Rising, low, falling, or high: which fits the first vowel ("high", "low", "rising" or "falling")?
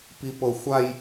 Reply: high